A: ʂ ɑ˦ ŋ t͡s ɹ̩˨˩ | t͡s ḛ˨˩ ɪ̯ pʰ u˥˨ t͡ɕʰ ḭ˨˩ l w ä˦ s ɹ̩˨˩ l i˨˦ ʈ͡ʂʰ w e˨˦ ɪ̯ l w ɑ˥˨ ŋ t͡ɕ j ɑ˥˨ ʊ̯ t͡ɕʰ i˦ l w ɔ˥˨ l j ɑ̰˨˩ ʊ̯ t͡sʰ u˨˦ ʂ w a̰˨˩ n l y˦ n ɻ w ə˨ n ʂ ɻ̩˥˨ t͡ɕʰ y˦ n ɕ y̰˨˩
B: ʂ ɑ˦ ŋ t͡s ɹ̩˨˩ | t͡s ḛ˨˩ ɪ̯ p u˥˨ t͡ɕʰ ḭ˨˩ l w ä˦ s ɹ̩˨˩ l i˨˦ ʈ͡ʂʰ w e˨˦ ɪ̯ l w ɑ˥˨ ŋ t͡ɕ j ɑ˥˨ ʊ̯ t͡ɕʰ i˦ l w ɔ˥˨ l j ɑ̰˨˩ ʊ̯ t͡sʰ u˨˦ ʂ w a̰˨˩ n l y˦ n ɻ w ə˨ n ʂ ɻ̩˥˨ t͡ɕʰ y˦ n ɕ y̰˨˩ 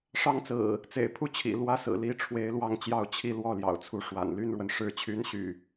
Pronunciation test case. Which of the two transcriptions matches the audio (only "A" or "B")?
A